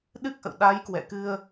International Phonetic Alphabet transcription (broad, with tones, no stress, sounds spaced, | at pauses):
ɗ ɨ˦˥ k̚ ʔ ə̰˧˨ w ɗ a˨˦ j k w ɛ̰˧˨ k ɨ˧ ə̯